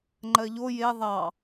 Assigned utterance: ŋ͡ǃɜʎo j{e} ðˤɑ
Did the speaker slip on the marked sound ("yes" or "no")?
no